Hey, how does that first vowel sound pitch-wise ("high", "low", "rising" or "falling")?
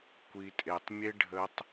low